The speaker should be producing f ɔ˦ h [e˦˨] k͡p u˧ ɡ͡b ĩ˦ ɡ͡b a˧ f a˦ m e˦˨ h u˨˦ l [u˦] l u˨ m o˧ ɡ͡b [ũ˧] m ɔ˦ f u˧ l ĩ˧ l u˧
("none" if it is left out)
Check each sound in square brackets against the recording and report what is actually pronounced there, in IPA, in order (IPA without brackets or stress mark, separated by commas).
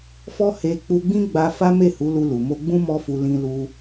e˧, u˧, ũ˦